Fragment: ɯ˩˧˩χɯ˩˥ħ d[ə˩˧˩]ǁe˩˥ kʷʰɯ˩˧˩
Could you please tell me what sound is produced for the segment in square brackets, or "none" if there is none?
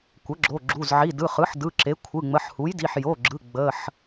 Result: ɯ˩˧˩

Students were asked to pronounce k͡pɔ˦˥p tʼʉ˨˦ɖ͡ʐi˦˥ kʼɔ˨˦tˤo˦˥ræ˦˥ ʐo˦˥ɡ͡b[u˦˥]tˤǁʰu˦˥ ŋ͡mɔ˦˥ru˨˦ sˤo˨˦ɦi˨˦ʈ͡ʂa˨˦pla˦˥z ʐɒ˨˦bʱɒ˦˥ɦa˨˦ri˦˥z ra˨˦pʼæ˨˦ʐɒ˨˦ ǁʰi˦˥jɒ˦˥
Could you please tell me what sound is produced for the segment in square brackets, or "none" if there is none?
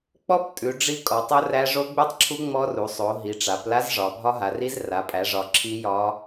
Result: ʉ˦˥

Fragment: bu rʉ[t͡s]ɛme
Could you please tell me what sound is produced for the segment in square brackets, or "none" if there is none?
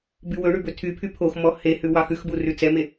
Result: t͡s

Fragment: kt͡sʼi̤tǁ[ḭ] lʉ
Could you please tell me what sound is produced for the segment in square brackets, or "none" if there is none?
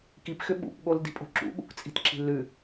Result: i̤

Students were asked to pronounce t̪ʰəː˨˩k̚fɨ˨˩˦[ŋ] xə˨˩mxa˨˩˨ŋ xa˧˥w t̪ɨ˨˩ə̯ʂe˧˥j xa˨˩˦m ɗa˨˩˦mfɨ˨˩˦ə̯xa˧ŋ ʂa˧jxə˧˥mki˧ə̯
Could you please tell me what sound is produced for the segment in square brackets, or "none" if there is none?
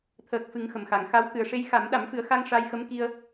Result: ŋ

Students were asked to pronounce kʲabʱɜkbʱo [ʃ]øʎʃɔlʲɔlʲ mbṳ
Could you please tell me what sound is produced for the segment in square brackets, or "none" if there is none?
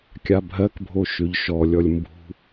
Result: ʃ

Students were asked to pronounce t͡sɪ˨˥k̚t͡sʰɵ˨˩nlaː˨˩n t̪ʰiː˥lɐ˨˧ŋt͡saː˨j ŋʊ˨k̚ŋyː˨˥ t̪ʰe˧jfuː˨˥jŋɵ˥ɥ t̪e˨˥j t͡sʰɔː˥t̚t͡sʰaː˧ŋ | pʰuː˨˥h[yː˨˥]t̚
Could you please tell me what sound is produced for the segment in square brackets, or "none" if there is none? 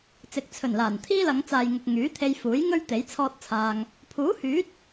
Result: yː˨˥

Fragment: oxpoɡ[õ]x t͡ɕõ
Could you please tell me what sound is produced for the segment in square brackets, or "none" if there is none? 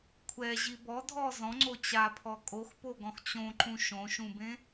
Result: ɔ̃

